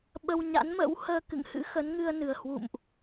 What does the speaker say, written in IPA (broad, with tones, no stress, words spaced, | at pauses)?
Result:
ɓə˧w ɲa̰˧˥nmə̰˧˥w həː˧kɨ̰˧˨ŋhɨ̰˧˥xə˨˦n ŋɨ˧ə̯ nɨ˨˩ə̯hwṵ˧˨mʔ